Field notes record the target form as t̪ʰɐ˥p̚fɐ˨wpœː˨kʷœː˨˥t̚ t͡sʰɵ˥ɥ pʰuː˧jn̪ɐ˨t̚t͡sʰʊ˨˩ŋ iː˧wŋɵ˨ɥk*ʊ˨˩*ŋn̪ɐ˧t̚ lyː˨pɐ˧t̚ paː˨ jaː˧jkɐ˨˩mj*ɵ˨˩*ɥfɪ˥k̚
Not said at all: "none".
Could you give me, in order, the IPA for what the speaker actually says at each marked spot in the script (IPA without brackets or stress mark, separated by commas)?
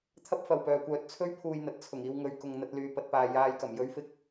ʊ˨, ɵ˥